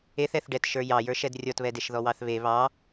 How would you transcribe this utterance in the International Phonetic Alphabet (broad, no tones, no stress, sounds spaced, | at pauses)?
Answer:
e θ ɛ θ ɖ ɛ t ʃ ə˞ j ɑ j ə˞ ʃ ɛ d rʲ ɔ t β ɛ d e ʃ ð ɔ w ɑ θ β e β ɑ